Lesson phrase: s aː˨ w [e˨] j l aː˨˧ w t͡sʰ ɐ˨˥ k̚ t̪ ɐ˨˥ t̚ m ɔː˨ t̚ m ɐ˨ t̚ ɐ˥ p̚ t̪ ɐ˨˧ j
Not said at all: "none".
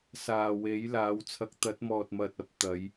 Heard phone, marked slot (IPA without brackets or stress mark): e˨˥